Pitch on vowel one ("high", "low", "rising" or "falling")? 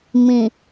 low